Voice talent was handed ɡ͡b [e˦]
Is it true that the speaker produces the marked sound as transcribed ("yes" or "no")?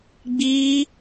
no